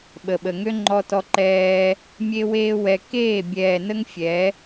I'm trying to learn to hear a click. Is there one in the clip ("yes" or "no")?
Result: yes